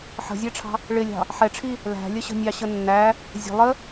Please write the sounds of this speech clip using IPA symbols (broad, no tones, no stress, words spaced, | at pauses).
ħə̤zʲæʈ͡ʂʰɑ̤ | ɭɪlʲɑ̤ | ħɛʈ͡ʂʰi | læ̤lʲəɕə̤ nʲɑɕənːæ | zʲə̤ lˠə